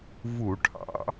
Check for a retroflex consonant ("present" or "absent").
present